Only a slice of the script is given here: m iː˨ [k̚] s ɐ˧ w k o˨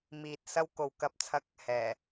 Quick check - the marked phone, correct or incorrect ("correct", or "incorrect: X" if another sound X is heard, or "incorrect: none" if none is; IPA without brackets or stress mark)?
incorrect: t̚